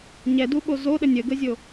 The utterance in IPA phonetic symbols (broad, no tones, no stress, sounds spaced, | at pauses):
ɲ ɛ d u ɓ o z o ɗ ə nʲ ə ɡ ə zʲ o